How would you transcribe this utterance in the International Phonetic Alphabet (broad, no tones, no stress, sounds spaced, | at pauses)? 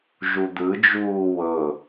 ʒ u d̪ ɯ d͡ʒ uː w ɤ